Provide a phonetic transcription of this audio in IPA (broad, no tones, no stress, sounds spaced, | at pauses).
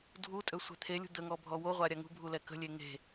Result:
dʱ u tʼ ø sʷ ɛ̤ t̪ʰ e lʲ ṳ d̪ ə ŋ ɔ bʱ ɔ w o ʁʷ a ɾʲ a ŋ ṳ bʱ u l ɛ k ə̤ lʲ e ŋ e̤